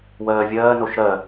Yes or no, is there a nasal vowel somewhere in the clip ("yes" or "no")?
no